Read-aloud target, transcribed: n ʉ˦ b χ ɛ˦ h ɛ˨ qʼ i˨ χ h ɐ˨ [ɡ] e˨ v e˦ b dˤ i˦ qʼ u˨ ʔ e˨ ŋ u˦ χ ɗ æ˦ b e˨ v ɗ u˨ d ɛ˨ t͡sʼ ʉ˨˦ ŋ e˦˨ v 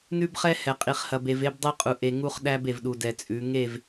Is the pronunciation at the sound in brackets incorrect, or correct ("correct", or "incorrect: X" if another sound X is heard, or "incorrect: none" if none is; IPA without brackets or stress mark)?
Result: incorrect: b